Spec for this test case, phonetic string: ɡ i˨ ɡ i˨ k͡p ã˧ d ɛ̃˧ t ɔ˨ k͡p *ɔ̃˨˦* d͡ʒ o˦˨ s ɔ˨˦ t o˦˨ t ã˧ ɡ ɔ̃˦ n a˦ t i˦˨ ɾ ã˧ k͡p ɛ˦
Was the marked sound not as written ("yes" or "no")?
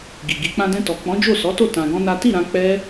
no